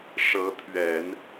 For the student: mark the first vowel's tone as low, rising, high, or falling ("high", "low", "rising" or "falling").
rising